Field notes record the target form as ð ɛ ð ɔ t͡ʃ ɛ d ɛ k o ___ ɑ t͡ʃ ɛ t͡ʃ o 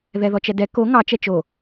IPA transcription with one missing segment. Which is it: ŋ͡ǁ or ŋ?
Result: ŋ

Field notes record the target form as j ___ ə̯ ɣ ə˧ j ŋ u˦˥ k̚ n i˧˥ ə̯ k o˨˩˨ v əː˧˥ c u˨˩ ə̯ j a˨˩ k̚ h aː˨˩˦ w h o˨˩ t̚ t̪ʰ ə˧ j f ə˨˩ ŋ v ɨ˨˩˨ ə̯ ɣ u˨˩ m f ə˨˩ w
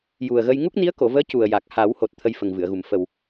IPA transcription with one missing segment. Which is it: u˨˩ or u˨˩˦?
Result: u˨˩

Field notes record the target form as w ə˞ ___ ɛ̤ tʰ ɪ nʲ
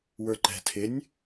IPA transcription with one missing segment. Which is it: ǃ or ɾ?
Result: ǃ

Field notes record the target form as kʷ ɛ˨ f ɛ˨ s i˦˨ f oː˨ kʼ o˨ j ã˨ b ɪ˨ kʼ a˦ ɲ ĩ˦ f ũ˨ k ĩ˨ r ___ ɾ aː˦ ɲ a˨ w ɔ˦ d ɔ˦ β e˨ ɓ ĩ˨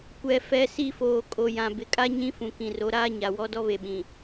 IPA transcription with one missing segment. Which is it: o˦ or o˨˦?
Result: o˨˦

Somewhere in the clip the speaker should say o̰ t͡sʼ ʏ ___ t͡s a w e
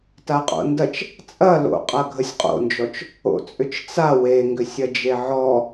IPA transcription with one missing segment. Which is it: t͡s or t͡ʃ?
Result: t͡ʃ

